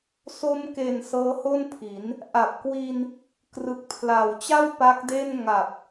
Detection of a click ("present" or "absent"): absent